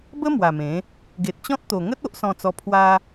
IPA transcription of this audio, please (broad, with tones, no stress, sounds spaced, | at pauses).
b ə˦ m w a˨˩ m ẽ˨˦ | ɡ e˨ t̚ t͡ɕ ɔ̃˦ t̚ t̪ o˨˩ ŋ ə˦ t̚ o˦ ʔ s ɔ̃˧ t͡s ɔ˧ pʰ w a˧